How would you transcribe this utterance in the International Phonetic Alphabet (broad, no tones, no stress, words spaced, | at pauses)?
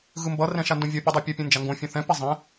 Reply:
ɣɯmbʌ rɛ̃ʃandõvʲʌ pʲudˤopʲʌ pʲũnd͡ʒaŋɡõ fʲõθɛ̃ pizˤẽ